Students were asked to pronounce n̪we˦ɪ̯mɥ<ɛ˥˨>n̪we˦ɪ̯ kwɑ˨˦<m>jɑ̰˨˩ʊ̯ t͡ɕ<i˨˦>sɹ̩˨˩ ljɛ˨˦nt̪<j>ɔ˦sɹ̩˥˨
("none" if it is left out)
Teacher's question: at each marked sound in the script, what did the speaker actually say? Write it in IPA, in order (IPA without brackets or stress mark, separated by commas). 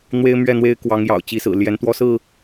ɛ˥˨, ŋ, i˨˦, w